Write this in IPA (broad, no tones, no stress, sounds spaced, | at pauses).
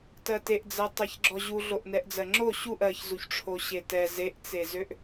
t ɜ t e ʔ d͡z ɜ tˤ ɜ ç ɡ͡ǁ ɔ ʑ u ɮ o ʔ n ɛ ʔ d͡z ɜ ŋ͡ǁ o ɕ u ʔ ɜ ç z u ç ʈ͡ʂʰ o ɕ e t ɛ z e ʔ t͡s e z ø ʔ